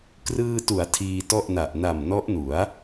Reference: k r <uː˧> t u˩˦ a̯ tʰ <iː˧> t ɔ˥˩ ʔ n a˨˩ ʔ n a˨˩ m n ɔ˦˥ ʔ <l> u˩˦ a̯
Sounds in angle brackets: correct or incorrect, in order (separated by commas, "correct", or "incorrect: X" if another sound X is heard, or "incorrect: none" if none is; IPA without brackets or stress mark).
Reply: incorrect: ɯː˧, correct, incorrect: n